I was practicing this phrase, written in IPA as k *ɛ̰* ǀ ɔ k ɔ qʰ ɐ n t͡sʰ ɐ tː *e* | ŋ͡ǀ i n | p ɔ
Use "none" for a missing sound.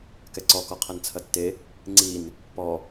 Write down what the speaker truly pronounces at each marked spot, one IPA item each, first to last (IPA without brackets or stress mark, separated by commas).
ɛ, e